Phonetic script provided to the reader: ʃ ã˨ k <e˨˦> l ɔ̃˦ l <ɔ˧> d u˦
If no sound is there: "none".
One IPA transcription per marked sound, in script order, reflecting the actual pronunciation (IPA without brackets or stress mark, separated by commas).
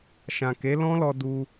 e˨˦, ɔ˧